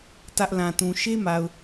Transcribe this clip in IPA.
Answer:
t ä˦ ʔ l ã˨ t ũ˨ ʃ e˦ m a˨ ʊ̯

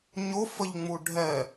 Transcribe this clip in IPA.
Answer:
ɲ ʊ f ə ʎ ŋ͡m u ɖʱ ɛ

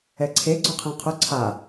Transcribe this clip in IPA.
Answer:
ɛ ǀʰ e ɡ͡ǀ ʊ qʰ ẽ qʰ ʊ ǀʰ a

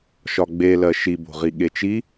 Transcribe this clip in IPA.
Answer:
ʃ ɒ ɡ͡b e l ɜ ʃ i b o̤ ʁ i ɠ e t͡ʃ i

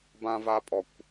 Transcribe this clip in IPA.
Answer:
b ã v a pʼ ɔ kʷ

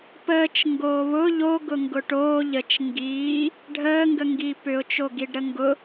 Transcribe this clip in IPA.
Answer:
p əː t͡ʃ ŋ ɡ oː β ʊ ʎ o ɡ ʊ ŋ ɡ ʊ ʈ oː ʎ ə t͡ʃ ŋ ɡ iː | ɖʱ əː ŋ ɡ ə ŋ ɡ iː p ʏ ʊ̯ t͡ʃ o ɡ i ɖ ɾ ə ŋ ɡ ʊ

